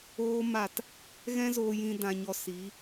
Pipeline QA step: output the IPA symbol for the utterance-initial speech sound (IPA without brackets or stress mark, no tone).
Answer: oː